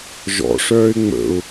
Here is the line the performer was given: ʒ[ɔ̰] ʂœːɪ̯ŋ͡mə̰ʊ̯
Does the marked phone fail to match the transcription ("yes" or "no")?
no